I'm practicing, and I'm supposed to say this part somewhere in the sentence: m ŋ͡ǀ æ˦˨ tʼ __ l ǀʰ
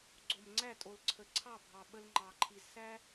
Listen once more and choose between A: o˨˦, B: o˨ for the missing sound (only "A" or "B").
B